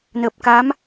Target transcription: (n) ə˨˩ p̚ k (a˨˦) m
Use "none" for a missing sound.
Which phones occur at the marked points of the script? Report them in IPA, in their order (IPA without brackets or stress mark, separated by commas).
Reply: n, a˨˦